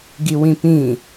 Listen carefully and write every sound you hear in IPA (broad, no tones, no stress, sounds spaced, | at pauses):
ɡ i w ĩ p ĩ